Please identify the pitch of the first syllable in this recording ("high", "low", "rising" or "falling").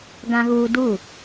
high